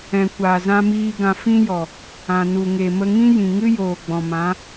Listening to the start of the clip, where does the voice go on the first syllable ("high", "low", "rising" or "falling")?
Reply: low